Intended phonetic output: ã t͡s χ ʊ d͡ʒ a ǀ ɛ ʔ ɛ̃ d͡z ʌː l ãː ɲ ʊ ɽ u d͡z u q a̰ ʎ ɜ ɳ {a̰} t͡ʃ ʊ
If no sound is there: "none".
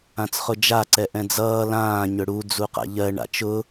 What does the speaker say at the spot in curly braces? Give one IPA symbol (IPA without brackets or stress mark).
a̰